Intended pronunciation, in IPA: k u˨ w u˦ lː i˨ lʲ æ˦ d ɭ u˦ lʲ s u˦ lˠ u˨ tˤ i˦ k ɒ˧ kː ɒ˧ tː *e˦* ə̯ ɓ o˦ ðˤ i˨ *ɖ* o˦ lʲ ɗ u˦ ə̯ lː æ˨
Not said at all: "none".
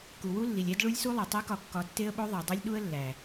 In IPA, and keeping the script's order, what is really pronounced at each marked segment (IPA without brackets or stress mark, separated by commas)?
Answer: e˦, dˤ